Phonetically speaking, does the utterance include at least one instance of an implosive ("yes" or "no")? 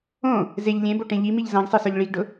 no